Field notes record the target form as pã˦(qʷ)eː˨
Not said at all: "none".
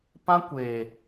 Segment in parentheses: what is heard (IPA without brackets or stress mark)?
kʷ